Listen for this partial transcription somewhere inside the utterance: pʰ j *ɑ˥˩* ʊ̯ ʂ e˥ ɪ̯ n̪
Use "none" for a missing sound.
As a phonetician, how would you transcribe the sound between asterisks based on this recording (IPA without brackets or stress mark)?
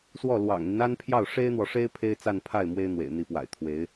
ɑ˥˩